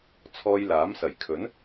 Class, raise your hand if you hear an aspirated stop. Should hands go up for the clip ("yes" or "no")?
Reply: yes